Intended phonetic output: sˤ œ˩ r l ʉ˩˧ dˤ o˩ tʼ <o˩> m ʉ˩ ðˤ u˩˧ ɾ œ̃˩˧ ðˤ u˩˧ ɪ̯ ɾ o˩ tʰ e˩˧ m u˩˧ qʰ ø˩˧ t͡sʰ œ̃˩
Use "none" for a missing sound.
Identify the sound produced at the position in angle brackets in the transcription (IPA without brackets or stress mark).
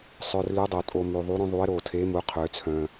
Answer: o˩